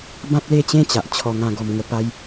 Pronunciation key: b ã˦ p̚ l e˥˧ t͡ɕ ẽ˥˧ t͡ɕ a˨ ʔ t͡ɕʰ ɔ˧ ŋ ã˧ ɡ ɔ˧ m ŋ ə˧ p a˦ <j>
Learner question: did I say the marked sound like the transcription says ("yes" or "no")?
yes